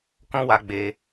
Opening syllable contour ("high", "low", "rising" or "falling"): high